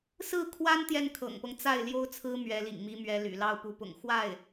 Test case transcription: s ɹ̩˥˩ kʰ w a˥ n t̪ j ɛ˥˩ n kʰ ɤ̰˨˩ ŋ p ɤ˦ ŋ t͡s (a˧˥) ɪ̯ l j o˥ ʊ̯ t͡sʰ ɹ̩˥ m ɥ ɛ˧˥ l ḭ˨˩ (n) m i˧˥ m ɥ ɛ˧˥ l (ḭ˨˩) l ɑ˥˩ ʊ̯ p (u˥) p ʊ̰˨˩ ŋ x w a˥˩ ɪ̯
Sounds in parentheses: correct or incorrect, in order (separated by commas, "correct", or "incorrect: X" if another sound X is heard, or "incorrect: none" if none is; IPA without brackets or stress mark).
incorrect: a˥˩, incorrect: ŋ, incorrect: y̰˨˩, incorrect: u˧˥